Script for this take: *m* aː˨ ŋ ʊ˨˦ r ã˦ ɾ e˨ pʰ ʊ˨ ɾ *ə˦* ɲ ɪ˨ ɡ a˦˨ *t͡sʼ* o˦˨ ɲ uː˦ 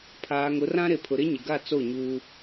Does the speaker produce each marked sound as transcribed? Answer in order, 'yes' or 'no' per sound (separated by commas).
no, no, no